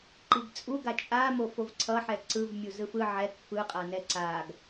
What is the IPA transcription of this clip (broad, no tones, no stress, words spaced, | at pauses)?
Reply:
ǃiɡt͡sʼuɡa t͡ʃʼamo fovǀʰʌħɛ ǀɯvmʲu zɯfɯ ʕɛk fɯqʼanɛ ǀaɡ